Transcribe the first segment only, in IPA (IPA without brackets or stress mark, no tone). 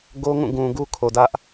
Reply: ɡ